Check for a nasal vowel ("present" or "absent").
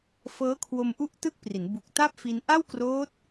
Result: absent